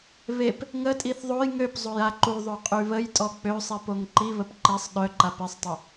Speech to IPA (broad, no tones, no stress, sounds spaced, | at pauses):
β e p | ŋ ə tʼ i θ ðˤ o j ŋ ø p zˤ o j a ǃ u ðˤ ø qʼ y β ə j tʼ ɔ k͡p ø sˤ i p o ŋ ǃ i β ə p ǃ i sˤ ɗ œ ǃ a p i sˤ tˤ y